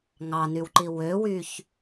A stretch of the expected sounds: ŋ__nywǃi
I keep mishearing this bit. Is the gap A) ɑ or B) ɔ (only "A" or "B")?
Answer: A